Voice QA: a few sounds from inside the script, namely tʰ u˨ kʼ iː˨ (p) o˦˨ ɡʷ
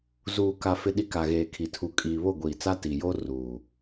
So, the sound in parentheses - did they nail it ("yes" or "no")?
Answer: no